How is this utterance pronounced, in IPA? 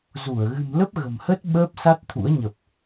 z u˧˩ ə̯ ɣ ɨ̤˨˩ m l ə˦˥ p̚ ɣ ə̤˨˩ m h ə˦˥ t̚ ɓ əː˦˥ p̚ s a˦˥ t̚ t̪ʰ ṵ˧˥ ə̯ ɲ ə˨˩ p̚

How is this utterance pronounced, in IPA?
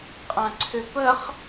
qʼ ã ǀʰ ʏ p ə χ

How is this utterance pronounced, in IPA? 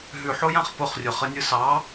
ɦ ʉ ħ o j ã χ p ʊ χ rʲ ʊ χ ə nʲ ɯ s ɑ

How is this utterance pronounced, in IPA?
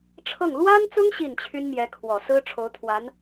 ʈ͡ʂʰ ɤ˥˩ ŋ l w a˥ n t͡s ʊ˥ ŋ ɕ i˥˩ n t͡ɕʰ y˥ n m j ɛ˧˥ kʰ w ɔ˨˩ s ɹ̩˥ ʈ͡ʂʰ o˧˥ ʊ̯ t̪ʰ w a˧˥ n

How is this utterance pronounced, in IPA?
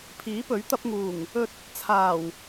pʰ iː˨˥ p ɵ˨˥ ɥ t̪ ɐ˧ p̚ ŋ uː˨˩ ŋ | ɵ˨ t̚ | t͡sʰ aː˨˩ w

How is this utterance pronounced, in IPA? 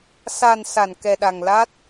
s a˨˩ n s a˧˩ n k ɛ˨˩ ɗ a˨˩ ŋ l a˦˥ t̚

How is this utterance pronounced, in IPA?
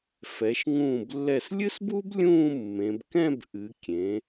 f ɛ˩˧ ʃ ŋ ũː˧˩ b lː ɛ˧˩ s lʲ ɨ˥ s b u˥ b lʲ ũː˥˧ mː ẽ˩˧ b k ɛ̃˥˧ b ʔ ɨ˩˧ kʲ ẽ˩˧

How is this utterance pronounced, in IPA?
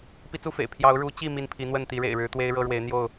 p i˦ t͡s u˦ f ḛ˨˩ ɪ̯ pʰ j ɑ˨˦ ʊ̯ ɻ u˨˦ t͡ɕ i˥˨ m i˥˨ n pʰ i˨˦ n̪ w ə˥˨ n t̪ i˨˦ ɻ ḛ˨˩ ɪ̯ ɻ ɻ̩˨˦ t̪ w e˦ ɪ̯ ɻ ɤ˦ ɻ w e˨˦ ɪ̯ n̪ j o˥˨ ʊ̯

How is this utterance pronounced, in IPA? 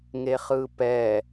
ŋ e χ ɯ p ɛ

